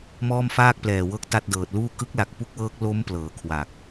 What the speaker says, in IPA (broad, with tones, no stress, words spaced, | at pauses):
mɔː˥˩mfaː˥˩k̚plɛː˨˩ wɤː˥˩k̚ta˥˩t̚dɤː˨˩t̚ luː˥˩ kɯ˦˥k̚la˨˩k̚ pu˦˥k̚wɤː˦˥k̚ lo˦˥m plɤː˩˦kʰwa˨˩k̚